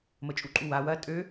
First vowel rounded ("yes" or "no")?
no